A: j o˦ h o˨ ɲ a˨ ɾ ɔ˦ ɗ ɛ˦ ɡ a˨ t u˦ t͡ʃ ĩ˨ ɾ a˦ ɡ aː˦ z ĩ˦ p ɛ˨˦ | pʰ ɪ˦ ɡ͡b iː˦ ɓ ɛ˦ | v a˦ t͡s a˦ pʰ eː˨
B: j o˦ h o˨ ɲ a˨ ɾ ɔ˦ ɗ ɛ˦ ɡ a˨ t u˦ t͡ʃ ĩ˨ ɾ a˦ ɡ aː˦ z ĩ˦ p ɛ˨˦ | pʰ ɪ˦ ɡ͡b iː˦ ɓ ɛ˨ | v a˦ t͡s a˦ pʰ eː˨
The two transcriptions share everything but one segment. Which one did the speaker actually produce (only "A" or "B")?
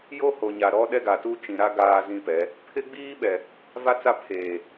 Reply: B